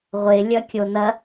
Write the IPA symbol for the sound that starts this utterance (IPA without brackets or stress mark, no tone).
ʁʷ